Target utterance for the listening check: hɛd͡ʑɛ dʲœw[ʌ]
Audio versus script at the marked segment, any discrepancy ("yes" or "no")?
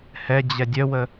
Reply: yes